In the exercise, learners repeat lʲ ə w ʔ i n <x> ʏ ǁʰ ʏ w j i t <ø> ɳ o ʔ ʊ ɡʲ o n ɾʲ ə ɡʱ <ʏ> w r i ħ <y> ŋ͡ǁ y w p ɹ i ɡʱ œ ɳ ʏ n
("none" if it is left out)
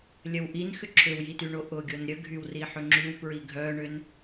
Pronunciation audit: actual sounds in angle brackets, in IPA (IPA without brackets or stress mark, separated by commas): x, y, y, ʏ